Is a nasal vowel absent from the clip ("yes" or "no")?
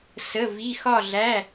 yes